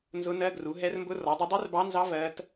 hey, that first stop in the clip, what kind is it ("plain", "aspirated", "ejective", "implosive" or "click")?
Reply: plain